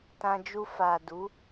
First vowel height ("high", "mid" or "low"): low